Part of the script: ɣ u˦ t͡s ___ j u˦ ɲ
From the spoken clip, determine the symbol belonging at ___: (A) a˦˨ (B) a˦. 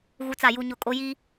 A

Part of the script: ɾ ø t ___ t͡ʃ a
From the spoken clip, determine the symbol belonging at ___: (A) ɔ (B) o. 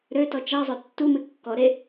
A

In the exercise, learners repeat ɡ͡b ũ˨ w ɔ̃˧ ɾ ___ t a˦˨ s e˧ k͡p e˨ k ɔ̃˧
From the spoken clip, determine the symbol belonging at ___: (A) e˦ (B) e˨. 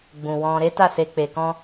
A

